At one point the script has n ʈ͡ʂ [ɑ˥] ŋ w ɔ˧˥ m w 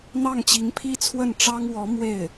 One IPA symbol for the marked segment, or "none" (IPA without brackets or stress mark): ɑ˥